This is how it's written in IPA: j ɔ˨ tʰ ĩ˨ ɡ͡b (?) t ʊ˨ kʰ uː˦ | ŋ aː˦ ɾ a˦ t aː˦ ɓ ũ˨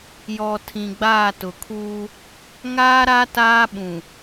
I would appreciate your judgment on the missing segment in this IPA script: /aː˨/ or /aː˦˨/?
aː˦˨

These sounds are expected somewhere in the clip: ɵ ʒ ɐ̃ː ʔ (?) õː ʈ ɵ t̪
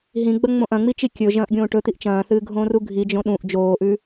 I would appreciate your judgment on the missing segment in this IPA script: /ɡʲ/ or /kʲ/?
ɡʲ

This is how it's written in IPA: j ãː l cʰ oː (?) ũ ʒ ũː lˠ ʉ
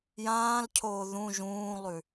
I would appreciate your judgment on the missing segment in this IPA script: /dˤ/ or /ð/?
ð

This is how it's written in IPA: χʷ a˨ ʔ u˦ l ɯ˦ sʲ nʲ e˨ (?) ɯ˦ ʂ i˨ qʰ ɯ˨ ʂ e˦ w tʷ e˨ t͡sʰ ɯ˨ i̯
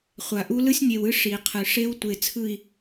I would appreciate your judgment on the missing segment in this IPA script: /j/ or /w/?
w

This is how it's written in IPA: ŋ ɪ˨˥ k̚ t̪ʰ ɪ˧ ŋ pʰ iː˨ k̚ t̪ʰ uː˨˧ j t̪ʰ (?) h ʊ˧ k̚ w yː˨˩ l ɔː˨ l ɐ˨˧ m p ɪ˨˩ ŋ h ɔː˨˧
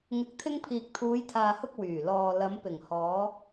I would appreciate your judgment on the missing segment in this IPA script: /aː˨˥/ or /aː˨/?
aː˨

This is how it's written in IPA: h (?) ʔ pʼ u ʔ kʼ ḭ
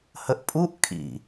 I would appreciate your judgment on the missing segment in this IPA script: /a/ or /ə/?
ə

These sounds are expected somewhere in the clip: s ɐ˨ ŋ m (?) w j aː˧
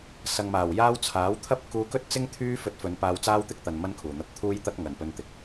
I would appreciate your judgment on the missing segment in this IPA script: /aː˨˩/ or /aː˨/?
aː˨˩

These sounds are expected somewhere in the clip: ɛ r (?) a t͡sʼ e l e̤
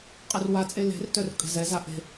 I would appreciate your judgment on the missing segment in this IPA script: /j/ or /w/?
w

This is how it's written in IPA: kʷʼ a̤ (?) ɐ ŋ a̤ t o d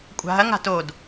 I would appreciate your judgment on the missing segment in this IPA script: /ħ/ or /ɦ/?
ɦ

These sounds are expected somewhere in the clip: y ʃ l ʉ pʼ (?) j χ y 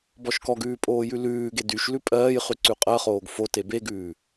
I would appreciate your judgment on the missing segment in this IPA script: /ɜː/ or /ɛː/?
ɜː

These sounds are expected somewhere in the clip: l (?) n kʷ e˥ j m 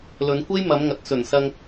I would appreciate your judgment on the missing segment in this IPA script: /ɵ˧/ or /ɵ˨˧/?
ɵ˨˧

